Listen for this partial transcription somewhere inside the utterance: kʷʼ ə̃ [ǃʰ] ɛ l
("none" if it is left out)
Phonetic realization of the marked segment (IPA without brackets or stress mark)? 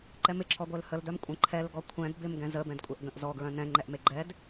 ǃʰ